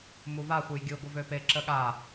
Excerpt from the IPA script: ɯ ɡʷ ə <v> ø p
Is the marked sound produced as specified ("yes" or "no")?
yes